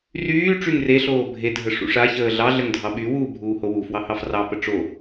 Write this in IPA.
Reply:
r yː ʈ͡ʂ y ŋ r e ɬ oː bʱ e dʱ ə ʂ ṵ ʂ a ç əː ɮ ɑ ɮ ə ŋ dʱ ɑ ɓ y w uː bʱ uː h o w u f w ɑ h ɑ f r ɑ p ə ʈ͡ʂ o

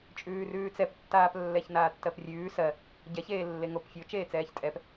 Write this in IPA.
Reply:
t͡ʃʼ ʉː r ʉː t͡s ɛ p tː aː p lː ɛ ç n aː tː ɜ p rʲ ʉː s ɜ | ɟ ɛ ç eː lː e ŋ o p fʲ o t͡ʃ eː t͡s ɛː ç tʼ ɛ p

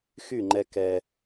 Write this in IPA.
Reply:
x y˦˨ ŋ͡ǃ ɛ˦ k ɛ˦

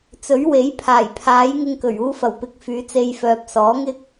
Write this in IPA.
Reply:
t͡s ɵ˨˥ ɥ w e˨˥ j pʰ aː˨˩ j pʰ aː˨˥ j ŋ ɪ˧ ŋ k ɵ˨˩ ɥ uː˧ f ɐ˨˩ w p ɪ˨˥ k̚ f yː˨˧ t͡s e˧ j f œː˨ p̚ s ɔː˨˥ ŋ ɪ˥ k̚

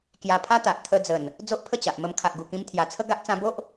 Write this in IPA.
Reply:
k j a˧ pʰ a˦ t̪ a˨ ʔ t̪ʰ ə˧ d͡z ə˨˩ n | d͡z o˦ ʔ pʰ ə˥˧ t͡ɕ a˨ ʔ m ə˧ m kʰ a˨ ʔ ɡ u˨˩ k ĩ˧ m t̪ʰ j a˨˩ t͡sʰ ə˦ ɡ a˦ ʔ t͡s ã˧ b o˦ ʔ

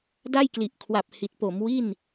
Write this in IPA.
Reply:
d a˥˩ j k l i˨˩ ʔ kʰ w a˨˩ p̚ h i˨˩ t̚ p o˩˦ m w i˥˩ n

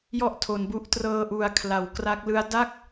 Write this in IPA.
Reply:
j ɔ˥˩ ʔ tʰ o˩˦ n b u˦˥ ʔ t r ɤː˧ ʔ u˨˩ a̯ kʰ l a˩˦ w k r a˦˥ k̚ l ɯ˦˥ a̯ d a˥˩ k̚

